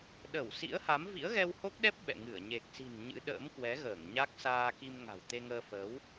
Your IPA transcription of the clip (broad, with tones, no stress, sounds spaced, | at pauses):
ɗ ə˧˩ w s ḭ˧˥ ə̯ h a˨˦ m v ḭ˧˥ ə̯ ɣ ɛ˧ w h o˦˥ k̚ ɗ ɛ˦˥ p̚ ɓ ɛ̰˧˨ ŋ ɨ˧˩ ə̯ ɲ e˨˩ k̚ s i̤˨˩ n ɲ ɨ̰˧˥ ɗ ə̰ː˧˥ m k w ɛ˨˦ ɣ əː˧˩ ŋ ɲ a˦˥ k̚ s aː˧ k i˧ m ŋ a̤˨˩ w t̪ e˧ ŋ əː˧ f əː˨˦ w